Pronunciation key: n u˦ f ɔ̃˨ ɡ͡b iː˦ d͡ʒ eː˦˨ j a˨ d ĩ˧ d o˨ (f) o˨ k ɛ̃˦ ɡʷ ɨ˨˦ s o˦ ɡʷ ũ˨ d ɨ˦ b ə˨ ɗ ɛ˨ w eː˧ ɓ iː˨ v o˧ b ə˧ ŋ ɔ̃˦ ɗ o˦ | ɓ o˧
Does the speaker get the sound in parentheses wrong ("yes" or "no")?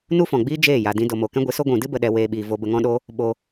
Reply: yes